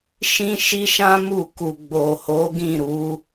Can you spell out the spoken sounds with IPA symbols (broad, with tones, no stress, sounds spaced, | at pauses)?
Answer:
ʃ ĩ˦ ʃ i˦ ʃ ã˦ m u˦˨ k u˨ ɡ͡b o˨ h o˨˦ ɡ ĩ˦˨ ɾ u˨˦